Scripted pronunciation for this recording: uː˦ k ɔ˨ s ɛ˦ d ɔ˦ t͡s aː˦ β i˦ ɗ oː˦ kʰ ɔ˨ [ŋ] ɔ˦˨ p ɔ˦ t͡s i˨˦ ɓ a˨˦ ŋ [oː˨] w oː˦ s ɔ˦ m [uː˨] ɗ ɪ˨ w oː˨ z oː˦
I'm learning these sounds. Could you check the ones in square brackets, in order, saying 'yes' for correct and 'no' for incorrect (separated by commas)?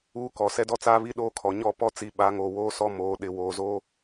no, yes, no